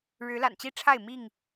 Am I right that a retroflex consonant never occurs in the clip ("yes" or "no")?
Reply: no